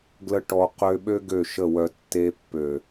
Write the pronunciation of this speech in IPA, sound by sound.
ɡ l ə˧ ʈ ɔ˨ q ø˧ ɓ ø˦ ɡ ø˦˨ ʃ ə˦˨ w œ˧ tː e˧ pː ø˨

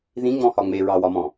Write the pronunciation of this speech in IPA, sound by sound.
ð ĩ ŋ͡m ɔ̃ h ɒ ŋ͡m e ɹ ɑ w ɒ m ɔ̃

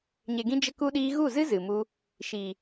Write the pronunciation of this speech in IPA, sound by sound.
ɲ e˨ ɡ ĩ˧ d͡ʒ ə˧ k u˧ ɗ iː˧ ɣ u˦˨ z ɨ˦ z ɨ˨ m u˧ | ʃ iː˨

